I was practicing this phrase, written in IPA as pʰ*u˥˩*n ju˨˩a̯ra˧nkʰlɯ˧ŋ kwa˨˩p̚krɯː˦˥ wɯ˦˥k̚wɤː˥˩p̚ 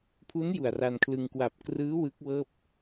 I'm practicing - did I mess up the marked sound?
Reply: yes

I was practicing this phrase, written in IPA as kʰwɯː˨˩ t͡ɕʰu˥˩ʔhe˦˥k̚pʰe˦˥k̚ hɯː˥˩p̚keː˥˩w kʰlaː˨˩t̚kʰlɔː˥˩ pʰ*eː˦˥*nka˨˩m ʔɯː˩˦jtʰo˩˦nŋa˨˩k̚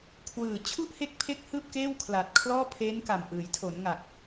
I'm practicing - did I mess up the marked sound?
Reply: no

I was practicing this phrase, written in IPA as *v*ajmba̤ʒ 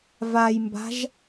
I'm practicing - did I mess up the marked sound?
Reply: no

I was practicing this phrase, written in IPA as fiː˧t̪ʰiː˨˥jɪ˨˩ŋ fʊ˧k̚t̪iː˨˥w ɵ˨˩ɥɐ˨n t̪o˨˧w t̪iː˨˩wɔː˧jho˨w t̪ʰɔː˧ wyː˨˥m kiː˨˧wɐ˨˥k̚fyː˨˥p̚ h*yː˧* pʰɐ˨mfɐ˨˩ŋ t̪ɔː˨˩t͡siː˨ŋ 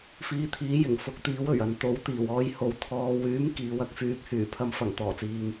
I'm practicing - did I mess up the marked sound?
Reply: yes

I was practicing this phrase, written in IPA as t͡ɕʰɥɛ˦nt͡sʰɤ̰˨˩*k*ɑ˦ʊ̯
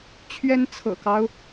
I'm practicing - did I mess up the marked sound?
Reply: no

